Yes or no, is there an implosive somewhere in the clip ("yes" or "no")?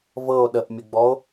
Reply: yes